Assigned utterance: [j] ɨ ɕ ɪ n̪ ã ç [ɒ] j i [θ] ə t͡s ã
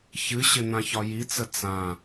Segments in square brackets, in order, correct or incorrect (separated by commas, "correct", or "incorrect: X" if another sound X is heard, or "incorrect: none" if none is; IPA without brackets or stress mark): incorrect: ç, correct, incorrect: t͡s